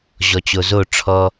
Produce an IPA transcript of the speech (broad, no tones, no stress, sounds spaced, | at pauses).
ʑ ɔ t͡ɕ o z o ʈ͡ʂʰ ɔ